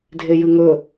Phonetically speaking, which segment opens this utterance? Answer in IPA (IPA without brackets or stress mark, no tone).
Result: dʱ